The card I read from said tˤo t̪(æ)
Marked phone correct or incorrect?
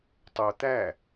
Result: correct